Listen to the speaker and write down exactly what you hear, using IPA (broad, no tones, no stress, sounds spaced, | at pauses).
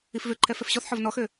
i f v ø ǃʰ ɛ f ɛ f ɕ ɔ θ ħ ɔ v n ɔ x ø